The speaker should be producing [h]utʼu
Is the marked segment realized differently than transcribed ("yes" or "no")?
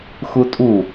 yes